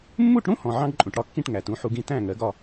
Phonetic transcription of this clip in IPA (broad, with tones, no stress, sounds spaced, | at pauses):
mː u˥˩ ʈ ɽ ũ˥ h ɔ̃˩ ʕ ɑ̃˥ ɡ ǃʼ ũ˩ ʈ ɽ ɒ˥ kː ĩ˥˩ ʈ ŋ æ˩ t ũ˩˥ ħ u˧ ɡ ĩ˥ t æ̃˥˩ ŋ ɜ˩˥ ɡ ɒ˥˩